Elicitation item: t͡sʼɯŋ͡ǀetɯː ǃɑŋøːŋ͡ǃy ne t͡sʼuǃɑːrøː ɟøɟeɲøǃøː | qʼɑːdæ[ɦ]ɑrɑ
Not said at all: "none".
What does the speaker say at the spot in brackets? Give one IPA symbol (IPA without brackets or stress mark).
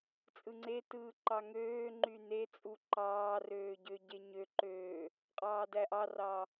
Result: ʔ